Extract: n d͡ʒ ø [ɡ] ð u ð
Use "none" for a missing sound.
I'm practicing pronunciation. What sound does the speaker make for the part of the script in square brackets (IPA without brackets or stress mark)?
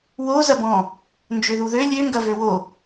none